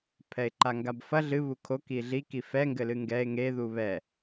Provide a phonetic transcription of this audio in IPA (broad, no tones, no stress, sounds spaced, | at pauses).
pʰ ɛ e̯ ǃ a ŋ ɡ a b f ɐ ɮ ɨ β u kʰ o k i ɮ i k i f ɛ ŋ ɡ ɘ l ɨ ŋ ɡ ɛ e̯ ŋ e ð u β ɛ